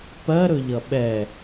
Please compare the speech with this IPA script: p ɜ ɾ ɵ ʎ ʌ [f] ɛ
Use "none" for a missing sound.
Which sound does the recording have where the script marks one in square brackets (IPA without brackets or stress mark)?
ɓ